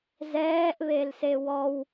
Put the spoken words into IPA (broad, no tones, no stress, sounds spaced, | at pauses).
z ɛː ʔ β e l s e w ɔ w